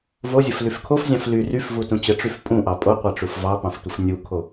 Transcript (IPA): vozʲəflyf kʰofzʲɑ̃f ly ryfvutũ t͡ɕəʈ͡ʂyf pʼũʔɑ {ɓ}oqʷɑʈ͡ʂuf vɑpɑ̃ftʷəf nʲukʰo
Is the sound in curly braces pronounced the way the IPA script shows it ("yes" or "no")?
no